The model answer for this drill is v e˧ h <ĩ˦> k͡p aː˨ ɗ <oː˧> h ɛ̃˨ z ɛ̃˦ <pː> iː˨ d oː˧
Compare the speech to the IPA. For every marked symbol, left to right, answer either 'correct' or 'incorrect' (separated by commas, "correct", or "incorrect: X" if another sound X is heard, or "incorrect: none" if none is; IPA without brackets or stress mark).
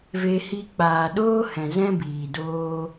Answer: incorrect: i˦, incorrect: oː˦, incorrect: b